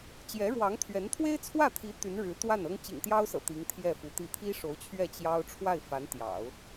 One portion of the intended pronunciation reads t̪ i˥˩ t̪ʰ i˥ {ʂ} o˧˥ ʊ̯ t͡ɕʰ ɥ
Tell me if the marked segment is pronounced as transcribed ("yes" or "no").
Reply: yes